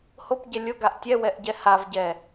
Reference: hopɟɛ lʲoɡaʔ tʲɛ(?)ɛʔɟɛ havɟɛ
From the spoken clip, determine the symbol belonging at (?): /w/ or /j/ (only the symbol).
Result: w